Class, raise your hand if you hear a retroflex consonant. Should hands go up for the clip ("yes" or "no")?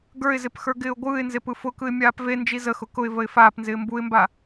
no